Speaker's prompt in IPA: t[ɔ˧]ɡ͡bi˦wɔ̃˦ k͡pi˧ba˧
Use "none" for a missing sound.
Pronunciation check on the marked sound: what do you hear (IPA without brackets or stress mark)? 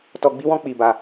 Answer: ɔ˧